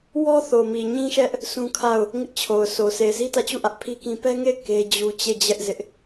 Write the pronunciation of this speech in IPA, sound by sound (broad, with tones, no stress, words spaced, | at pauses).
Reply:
wɔ˦ θo˨mi˨ɲĩ˦ʃɛ˦ʔ | sũ˦kʰa˦˨ʊ̯ | ŋɪ˦ʔt͡ɕʰo˨ʊ̯ so˨ se˨ɪ̯zi˦tä˦˨t͡ɕu˦˨ ʔä˦ʔpʰi˦kĩ˦ pɛ˦ŋe˦˨ɪ̯ ke˦d͡ʑu˦ t͡ɕe˦˨d͡ʑɛ˦ʔ zɪ˦ʔ